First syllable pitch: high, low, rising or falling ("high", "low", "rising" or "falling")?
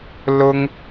high